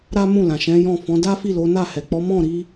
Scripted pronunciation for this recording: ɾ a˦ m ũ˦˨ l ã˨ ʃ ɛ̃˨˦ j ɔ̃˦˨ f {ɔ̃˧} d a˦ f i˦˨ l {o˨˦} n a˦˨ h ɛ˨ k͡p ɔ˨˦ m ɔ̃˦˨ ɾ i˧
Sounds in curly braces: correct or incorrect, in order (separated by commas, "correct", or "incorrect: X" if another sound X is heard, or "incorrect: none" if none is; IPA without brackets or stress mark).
incorrect: ɔ̃˨˦, correct